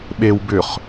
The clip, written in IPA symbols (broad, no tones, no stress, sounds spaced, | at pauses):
ɓ e w b ʏ χ